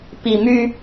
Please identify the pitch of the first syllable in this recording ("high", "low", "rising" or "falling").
low